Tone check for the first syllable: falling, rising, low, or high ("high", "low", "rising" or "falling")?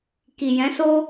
low